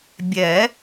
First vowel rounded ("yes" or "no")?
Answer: no